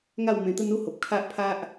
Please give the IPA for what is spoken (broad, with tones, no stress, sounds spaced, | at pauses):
ŋ a˥˧ w m ẽ˧ t̪ ə˦ n u˦ h o˨ p̚ kʰ a˦ ʔ pʰ a˦ ʔ